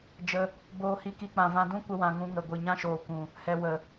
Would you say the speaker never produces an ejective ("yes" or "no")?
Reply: yes